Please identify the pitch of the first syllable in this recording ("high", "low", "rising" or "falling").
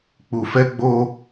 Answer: low